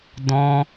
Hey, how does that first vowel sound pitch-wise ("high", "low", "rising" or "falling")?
high